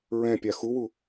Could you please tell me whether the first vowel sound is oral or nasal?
nasal